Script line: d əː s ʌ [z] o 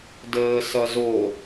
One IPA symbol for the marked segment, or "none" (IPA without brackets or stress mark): z